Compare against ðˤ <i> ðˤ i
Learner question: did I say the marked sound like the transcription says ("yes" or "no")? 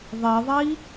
yes